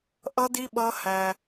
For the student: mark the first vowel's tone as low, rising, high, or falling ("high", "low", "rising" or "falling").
high